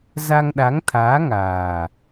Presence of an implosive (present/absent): present